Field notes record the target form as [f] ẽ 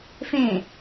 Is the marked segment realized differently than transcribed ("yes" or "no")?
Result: no